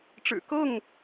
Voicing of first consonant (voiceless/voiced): voiceless